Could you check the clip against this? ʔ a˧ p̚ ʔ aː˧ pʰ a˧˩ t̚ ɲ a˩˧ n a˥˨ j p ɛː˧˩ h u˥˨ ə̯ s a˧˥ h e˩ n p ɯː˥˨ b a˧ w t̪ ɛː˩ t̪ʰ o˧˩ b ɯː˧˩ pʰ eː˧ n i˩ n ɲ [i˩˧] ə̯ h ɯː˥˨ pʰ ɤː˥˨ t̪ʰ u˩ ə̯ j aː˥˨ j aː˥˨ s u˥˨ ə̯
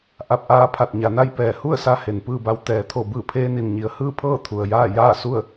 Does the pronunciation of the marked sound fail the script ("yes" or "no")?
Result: no